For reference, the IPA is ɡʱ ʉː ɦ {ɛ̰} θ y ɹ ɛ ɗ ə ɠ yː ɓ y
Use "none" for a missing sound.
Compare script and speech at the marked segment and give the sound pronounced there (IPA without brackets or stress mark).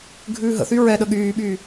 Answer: ə̰